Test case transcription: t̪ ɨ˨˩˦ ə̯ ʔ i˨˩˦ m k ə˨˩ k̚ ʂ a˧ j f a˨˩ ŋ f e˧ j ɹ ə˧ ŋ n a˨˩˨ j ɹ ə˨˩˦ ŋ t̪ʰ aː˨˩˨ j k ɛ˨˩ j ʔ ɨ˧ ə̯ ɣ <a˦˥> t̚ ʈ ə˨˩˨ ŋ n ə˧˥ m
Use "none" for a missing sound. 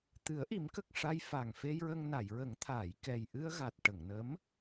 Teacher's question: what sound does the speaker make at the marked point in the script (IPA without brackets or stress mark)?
a˨˩